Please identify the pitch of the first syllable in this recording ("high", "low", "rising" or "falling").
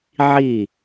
falling